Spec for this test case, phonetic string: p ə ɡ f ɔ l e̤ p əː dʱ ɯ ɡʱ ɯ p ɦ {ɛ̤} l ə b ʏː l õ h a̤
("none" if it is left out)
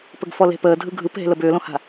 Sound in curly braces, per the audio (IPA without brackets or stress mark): e̤